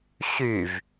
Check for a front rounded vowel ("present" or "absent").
present